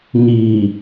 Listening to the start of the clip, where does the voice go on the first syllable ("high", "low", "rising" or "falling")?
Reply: low